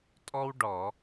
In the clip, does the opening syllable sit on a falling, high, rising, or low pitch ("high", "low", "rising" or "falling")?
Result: high